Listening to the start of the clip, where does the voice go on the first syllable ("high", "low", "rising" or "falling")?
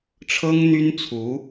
high